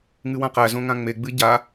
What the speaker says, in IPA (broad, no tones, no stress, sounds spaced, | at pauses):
ŋ ɨ w ã q æ z õ ŋ ã ŋ͡m e ɡ͡b ɨ ɟ a